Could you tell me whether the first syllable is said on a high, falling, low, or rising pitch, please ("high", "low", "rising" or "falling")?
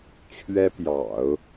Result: high